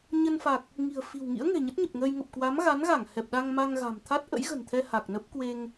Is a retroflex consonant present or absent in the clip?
absent